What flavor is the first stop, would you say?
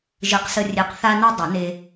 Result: plain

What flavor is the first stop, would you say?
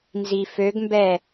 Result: plain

